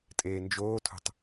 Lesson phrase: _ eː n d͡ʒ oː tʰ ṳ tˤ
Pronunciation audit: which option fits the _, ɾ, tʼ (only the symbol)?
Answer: tʼ